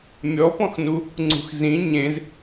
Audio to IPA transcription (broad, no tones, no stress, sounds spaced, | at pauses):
mʲ ɔ p ɔ̃ x n u | ŋ͡ǀ ṳ x z ĩ ɲ ẽ z